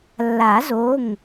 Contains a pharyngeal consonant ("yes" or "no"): no